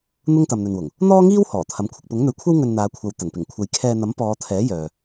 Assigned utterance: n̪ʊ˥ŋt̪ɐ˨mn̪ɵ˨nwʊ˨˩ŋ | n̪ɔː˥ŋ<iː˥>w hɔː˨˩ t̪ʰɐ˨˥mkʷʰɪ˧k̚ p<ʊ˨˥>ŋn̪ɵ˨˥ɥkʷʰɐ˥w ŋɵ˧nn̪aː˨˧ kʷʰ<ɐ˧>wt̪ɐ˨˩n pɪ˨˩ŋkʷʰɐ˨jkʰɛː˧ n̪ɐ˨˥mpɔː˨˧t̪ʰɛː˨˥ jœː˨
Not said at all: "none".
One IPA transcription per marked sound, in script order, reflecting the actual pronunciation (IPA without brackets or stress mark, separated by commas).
iː˥, ʊ˨˥, ɐ˧